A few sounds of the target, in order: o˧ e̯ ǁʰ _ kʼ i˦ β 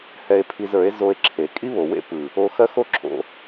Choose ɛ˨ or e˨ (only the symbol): e˨